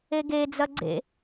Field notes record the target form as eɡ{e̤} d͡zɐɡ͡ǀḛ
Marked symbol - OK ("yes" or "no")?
no